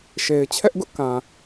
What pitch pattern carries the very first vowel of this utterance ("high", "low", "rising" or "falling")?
low